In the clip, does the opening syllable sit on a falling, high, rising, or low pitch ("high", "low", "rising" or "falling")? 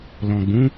low